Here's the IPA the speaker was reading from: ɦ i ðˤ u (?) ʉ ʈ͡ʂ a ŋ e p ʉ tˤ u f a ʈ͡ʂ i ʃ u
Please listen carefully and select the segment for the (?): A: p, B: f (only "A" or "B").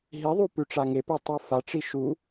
A